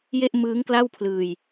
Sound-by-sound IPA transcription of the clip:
je˥˩ʔmɯː˦˥ŋkla˥˩wpʰlɯː˧j

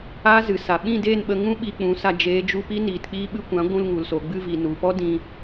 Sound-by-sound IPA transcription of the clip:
aː˦ zɨ˨sa˨ ɓĩ˦˨deː˦˨nɓə˧ŋũ˦ ɓi˧k͡pũ˨˦sa˧ d͡ʒeː˨˦d͡ʒu˧pi˦ niː˨tk͡piː˧ɓɨ˧kʷã˨˦ ɡʷũ˧lŋu˨lso˨ɡ͡bɨ˧ vi˨nu˨ pɔ˦ dĩ˧

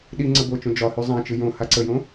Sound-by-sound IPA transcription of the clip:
ɗiŋ͡ǀə bot͡ʃõ d͡ʒɒhy zˤãt͡ʃɨ jõ haǀəjõ

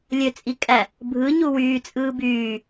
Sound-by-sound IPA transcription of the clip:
lʲøt͡sʼikʼæ | bʱɯ ɲuwyː t͡sʼɯːbyː

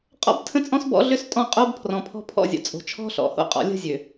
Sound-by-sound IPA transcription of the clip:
qʼɔ̰˦btʰə̃˦t͡sʼɔ̃˦s bɔ̰˦ɮʏ˦stʼɔ̃˦˨ qʼo˦bpʰrɔ̃˨pʰɔ̤˦ pʰɔ̰˦˨zʲə̰˨t͡sʼo̤˨t͡ʃʰɔ̤˦ ɬɔ̰˨ho̰˦qʼɔ̰˨ lʲə̤˦zʲø˨

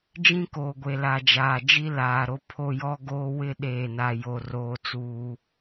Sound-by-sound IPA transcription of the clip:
d͡ʒĩ˦koː˨ɡʷe˨la˨ d͡ʒaː˨d͡ʒi˦ laː˨ɾo˦ pʰo˦ jɔ˦ɡoː˦wɪ˦ ɗeː˦˨na˦jo˦ roː˦t͡suː˦

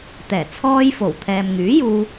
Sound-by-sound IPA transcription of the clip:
t̪ɛː˨˩ t͡sʰɔː˧j fo˨˩wt̪ʰɛː˨mŋyː˨˥juː˧

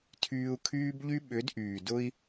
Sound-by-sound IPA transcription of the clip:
tʰyː˧u̯kʰyː˦bʎy˦ ɓʏ˨˦dʔyː˨ dʊ˧i̯

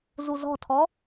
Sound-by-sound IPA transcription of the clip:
zuzɔ̤tʰɔ

